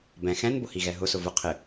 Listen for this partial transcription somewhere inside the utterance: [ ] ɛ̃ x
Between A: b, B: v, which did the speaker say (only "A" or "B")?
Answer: A